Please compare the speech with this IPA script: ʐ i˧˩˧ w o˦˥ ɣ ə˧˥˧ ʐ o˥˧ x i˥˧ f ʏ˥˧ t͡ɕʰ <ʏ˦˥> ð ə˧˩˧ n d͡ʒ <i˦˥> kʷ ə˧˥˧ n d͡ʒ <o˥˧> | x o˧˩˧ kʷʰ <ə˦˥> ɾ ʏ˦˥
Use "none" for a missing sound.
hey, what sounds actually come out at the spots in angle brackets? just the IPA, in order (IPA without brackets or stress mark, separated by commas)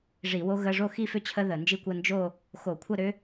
ə˦˥, i˦˥, o˥˧, ə˥˧